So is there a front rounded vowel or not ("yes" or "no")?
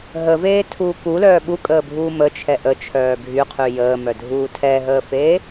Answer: yes